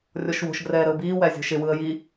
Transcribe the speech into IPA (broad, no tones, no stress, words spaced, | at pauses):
rʲɔʃwo̤ʃɡrɛː ɾəʊ̯biːwæ zʲo̤ʃɪwɯə̯ ji